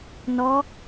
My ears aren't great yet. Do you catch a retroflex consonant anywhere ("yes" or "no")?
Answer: no